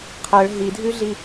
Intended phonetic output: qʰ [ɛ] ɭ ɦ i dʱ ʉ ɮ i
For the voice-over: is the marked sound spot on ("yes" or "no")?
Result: no